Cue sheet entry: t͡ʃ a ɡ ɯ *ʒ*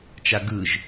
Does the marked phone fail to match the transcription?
no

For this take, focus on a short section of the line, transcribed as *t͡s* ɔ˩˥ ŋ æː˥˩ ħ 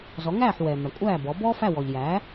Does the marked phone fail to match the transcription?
yes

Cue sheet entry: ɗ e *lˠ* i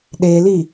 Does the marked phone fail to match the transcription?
yes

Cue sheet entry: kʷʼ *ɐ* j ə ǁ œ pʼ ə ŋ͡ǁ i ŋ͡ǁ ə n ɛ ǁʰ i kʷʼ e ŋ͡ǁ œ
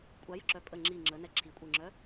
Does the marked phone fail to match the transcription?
yes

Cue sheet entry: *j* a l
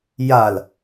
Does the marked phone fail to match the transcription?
no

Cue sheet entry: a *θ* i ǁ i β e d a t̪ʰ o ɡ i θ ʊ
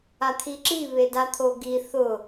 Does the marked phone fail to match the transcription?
yes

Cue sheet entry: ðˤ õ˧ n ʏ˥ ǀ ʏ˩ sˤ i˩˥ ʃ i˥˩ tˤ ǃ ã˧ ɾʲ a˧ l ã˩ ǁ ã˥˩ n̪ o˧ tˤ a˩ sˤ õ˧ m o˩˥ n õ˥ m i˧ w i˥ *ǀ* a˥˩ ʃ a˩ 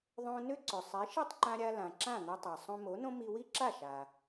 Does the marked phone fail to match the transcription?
yes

